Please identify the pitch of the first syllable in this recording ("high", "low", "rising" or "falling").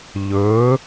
rising